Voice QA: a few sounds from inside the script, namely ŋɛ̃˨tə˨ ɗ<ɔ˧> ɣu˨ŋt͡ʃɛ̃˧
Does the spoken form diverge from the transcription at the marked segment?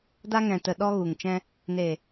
no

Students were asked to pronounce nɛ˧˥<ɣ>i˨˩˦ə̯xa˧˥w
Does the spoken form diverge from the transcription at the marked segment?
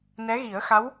no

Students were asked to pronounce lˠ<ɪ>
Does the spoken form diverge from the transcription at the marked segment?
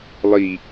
yes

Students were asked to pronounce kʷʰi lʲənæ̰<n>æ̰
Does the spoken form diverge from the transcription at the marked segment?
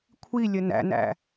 no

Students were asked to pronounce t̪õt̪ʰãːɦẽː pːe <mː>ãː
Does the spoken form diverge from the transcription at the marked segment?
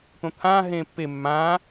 no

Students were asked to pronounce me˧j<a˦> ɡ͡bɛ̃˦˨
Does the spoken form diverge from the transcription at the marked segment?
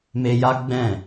no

